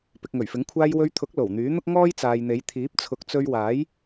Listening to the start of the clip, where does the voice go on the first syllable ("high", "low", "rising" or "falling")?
low